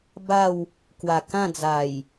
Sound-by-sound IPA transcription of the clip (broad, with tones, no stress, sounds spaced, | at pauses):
b a˥˧ w | k w a˨˩ k ã˥˧ d͡z a˨˩ j